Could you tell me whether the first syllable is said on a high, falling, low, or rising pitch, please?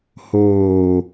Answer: low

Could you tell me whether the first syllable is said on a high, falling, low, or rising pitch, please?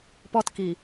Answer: high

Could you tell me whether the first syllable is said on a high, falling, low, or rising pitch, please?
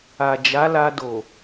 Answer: low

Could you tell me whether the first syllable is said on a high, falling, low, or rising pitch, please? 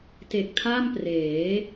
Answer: low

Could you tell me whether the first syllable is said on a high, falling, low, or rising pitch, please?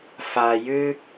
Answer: low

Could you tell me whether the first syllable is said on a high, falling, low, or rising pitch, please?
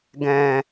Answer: low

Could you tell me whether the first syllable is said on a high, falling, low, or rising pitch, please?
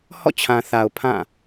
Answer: falling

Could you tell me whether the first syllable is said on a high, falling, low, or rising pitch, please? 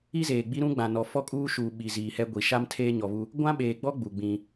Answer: high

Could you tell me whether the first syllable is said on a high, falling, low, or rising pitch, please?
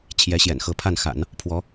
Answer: rising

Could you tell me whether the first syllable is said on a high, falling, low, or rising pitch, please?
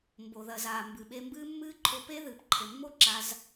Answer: low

